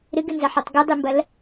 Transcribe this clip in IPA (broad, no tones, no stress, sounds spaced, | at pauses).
ɾ ɨ ɡ ɨ n z ɐ ħ ɛ tˤ ɡ u dˤ ɨ m b ɐ l